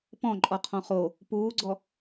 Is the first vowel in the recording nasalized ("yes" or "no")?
yes